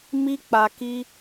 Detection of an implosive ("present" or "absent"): absent